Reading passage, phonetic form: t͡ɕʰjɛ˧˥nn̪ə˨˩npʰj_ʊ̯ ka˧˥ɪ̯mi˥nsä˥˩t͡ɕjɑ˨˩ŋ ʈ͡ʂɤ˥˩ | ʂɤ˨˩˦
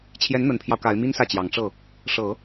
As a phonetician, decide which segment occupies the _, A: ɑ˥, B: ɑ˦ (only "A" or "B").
B